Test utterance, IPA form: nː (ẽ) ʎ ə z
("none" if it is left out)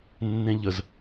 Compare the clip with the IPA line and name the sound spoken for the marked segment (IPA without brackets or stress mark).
ẽ